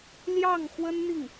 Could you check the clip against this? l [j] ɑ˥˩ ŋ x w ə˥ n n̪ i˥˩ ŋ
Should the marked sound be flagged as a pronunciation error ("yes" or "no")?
no